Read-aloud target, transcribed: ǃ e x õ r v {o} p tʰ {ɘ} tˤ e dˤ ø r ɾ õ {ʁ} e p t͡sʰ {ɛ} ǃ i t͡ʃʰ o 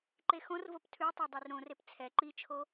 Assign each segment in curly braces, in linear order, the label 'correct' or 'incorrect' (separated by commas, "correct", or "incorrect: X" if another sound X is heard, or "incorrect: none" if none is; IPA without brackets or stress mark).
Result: correct, incorrect: ʉ, incorrect: r, correct